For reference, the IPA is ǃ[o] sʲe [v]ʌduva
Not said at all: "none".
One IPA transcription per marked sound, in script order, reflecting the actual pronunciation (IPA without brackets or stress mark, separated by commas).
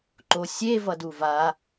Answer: o, v